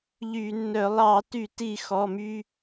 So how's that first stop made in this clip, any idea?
plain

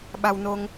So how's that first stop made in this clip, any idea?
implosive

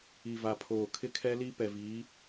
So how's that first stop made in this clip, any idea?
aspirated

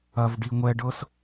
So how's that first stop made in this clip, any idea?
plain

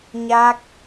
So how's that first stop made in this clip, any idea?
plain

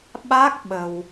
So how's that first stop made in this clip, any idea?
implosive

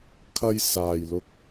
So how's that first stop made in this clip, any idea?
aspirated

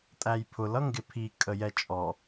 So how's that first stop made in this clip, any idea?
ejective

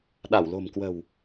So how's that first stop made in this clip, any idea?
implosive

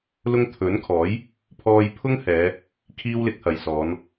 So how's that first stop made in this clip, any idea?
aspirated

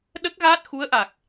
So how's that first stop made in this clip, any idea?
implosive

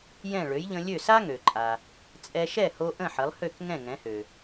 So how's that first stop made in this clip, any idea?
click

